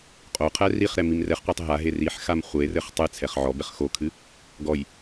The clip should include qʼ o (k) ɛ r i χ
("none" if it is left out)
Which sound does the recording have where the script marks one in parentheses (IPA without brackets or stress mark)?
qʰ